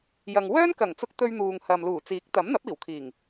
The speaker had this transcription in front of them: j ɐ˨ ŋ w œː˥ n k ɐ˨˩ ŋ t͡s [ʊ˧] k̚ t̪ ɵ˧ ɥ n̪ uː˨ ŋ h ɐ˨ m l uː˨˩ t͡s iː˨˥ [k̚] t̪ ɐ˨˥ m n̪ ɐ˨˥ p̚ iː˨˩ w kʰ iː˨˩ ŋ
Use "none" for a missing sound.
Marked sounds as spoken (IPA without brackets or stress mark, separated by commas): ʊ˧, k̚